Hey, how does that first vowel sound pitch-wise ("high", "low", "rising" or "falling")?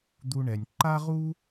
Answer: high